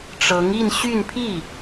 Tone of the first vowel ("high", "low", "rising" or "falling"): rising